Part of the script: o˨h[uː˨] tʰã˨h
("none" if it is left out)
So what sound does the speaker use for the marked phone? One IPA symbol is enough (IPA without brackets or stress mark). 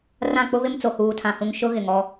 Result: uː˨